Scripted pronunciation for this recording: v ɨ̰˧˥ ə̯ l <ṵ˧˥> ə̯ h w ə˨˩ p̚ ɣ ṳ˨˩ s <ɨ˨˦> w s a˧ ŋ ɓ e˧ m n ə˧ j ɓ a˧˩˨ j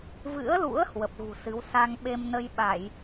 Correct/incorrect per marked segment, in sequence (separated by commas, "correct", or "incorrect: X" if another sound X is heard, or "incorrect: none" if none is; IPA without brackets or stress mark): correct, correct